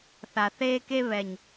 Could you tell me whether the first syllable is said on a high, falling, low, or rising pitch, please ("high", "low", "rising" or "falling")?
low